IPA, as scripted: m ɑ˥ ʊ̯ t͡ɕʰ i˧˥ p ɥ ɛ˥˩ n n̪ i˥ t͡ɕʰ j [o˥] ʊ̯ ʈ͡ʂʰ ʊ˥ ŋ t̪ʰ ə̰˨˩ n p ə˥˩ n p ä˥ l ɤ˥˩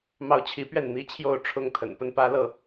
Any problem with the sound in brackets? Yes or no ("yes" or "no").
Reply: yes